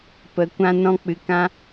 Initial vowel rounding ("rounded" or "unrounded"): unrounded